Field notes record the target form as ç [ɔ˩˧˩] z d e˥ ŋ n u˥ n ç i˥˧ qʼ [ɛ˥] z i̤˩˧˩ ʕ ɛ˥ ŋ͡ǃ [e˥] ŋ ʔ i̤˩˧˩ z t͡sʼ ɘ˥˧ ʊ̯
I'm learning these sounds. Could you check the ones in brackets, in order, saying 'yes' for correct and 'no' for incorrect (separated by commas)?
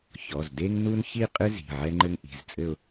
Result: yes, no, no